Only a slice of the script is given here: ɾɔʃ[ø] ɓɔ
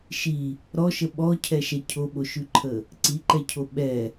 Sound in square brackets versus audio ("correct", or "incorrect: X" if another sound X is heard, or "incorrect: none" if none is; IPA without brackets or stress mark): incorrect: ə